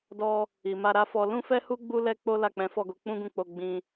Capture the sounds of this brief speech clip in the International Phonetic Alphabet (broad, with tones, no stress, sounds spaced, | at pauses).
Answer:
d ɔ˧ | i˨ m a˧ ɾ a˦ f ɔ˧ l ũ˦ f ɛ˦ h u˦ ɡ͡b u˦ l ɛ˦ k͡p o˦ l a˦˨ k͡p ɛ̃˨˦ f ɔ˦˨ ɡ o˧ k͡p ũ˦ ɡ ũ˦˨ k͡p o˧ ɡ͡b ĩ˧